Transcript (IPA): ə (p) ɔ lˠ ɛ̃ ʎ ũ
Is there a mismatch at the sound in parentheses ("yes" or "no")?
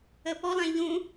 no